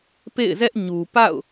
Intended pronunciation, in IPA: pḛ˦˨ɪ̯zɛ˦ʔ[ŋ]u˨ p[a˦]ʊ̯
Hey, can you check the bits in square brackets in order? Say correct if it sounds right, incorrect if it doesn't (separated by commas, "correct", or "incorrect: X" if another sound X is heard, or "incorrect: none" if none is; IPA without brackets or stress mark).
incorrect: ɲ, incorrect: a̰˦˨